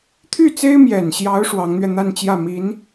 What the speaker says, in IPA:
t̪ʰ y˥˩ t͡s e˥ ɪ̯ m j ɛ˨˩ n ɕ j ɑ˧˥ ʊ̯ ʂ w ɑ˧˥ ŋ n̪ ɥ ɛ˧ n̪ a˥˧ n t͡ɕ j ä˥˩ m i˧˥ n

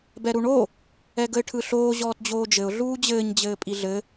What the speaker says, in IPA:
b ɛ ɾ u ɳ o | ɛ ɡ ə ɪ̯ ʈʰ ɯ ɬ oː ʑ ɔː t d͡ʑ oː d͡ʒ ɘ ʊ̯ ɮ uː d͡ʑ ɘː ɲ d͡ʑ ɘː pʼ i ɮ ɘ

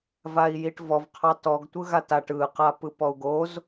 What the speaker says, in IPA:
v a i̯ j i ʈ v ɔ v qʰ ɑ t ɔ ɡ tʷ ɯ ɣ a t a ʈ ɯ q a p ɯ p ɔ u̯ ɡ o z

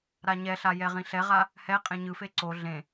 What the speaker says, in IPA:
ɾ a ɲ ɛ ɬ a j ɛ ʁ ĩ ɬ ɛ ʁ a | h ɛ qʼ ẽ ɲ ɯ f e ǀ o ɮ ẽ

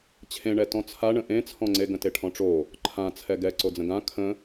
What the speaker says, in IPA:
t͡ɕʰ ẽ ɳ ɛ t ɔ̃ t͡sʰ a ɳ ə̃ ʔ ẽ t͡sʰ ɔ̃ ŋ͡ǀ e ɡ ə̃ t e ʈʰ ɔ̃ ʈ͡ʂ o | ǃʰ ã t͡sʰ ɛ ɡ ɛ ǀ o d͡z ə̃ ɡ ã kʰ ə̃

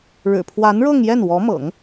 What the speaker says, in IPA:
ɻ ɻ̩˨˩ pʰ w a˧˥ n ɻ ɤ˥˧ ŋ j ɛ˥˩ n w ɔ˧˥ m ɤ̰˨˩˦ ŋ

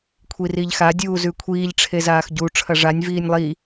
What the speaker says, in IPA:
kʷʰ i r i ʎ x a dʲ uː z ʉ kʷʰ iː ʎ ʈ͡ʂʰ e z aː x ɟ u ʈ͡ʂʰ ɐ ʐ a nʲ v iː nʲ lˠ i

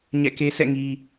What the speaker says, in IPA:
ɲ ɛ̰˦˨ k e˦ sʰ ɛ̰˦˨ ŋ i˨

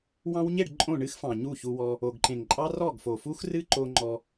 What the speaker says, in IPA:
w ɑ̃˧ w ɲ e˦˨ ɖ ǃʼ õ˦˨ ɳ ɨ˦ x f ɑ̃˨ ɲ u˦˨ ç u˧ w ɔ˧ | o˨ ɡ ǃ ẽ˨ ŋ ǃʼ ɑ˦ r ɔ˦˨ ɡ f o˨ f u˦ x r ɨ˦ ǃ o˧ ŋ͡ǃ ɔ˧

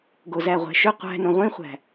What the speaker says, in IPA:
ɡ o z æ ʁʷ æ̤ ʃ ʏ qʷ æ̤ n õ ʁʷ ĩ χʷ æ̤

